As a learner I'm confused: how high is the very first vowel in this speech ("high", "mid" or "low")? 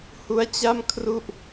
high